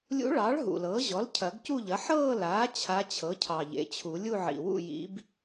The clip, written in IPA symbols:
lʲṵ˧˥ɭɑː˩˥ɭ ɦṵ˨˩lɤː˩˥ʑɔ˩˥l cʰɐ˨˩˦ɡcu˥˧ʎɐ˩˥ ħɤː˥˧laː˩˥ t͡ɕʰa˧˥t͡ɕʰɤ˩˥cʰɑ˨˩ ʎḛ˩˥t͡ɕʰu˨˩˦ lʲu˥˧ʕḭ˨˩wṵ˥˧jḭ˧˥b

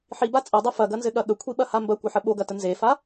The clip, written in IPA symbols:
ħiba t͡sʼɐdˤɐ fɐɡɐnzɘɠɐ ɠəkʷʰiɓɐha mbɐkʷɐħə ɓoɡɐtə nzefa

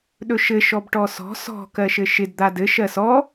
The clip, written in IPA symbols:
ɗɵʃɘ ʃɔbʈɔsɔ̤ sɔ̤ kɜʃɘʃɪd d̪adɘ ʃɜsɔ

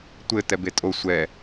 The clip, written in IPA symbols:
tʷɘ tɛbetʼo sʷɛ

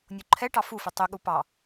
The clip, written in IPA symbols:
nʲoǃʰɛʈɑ fufʏ tˤʏɠu pɑ

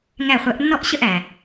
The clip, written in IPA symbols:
ŋæ˧˩χʷæ˨˦ʔnːɔ˥˨ʔ ɕə˥˨ʔæ˩

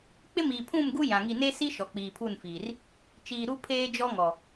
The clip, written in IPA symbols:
k͡pɪ˦miː˨pʰũ˦˨mɡu˦ jã˨ŋi˦˨ ne˦si˦ ʃɔ˨k͡piː˨pʰu˦˨nfiː˨r | t͡ʃiː˨ɾu˦ pʰeː˦d͡ʒɔ˦ŋɔ˨

